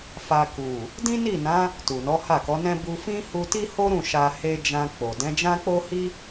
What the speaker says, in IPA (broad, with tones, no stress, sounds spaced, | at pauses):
f a˧ k u˨ | d ĩ˦ n i˦˨ n ã˨˦ | t u˨ n ɔ˨˦ h a˦˨ k ɔ˨˦ n ɛ̃˦ b u˧ f ĩ˦ h u˧ t i˦ h o˦ ɾ ũ˦˨ ʃ a˧ h e˧ d͡ʒ ã˧ k͡p o˨ d ɛ̃˨˦ d͡ʒ ã˦ k͡p o˦ h i˦